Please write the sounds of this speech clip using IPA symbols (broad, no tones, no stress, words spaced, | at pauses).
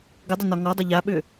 ɡədˤʏnɒ ŋɔdˤʏ ʎaɓʏ